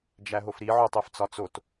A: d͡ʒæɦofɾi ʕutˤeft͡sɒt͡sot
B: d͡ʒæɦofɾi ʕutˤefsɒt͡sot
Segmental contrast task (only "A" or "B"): A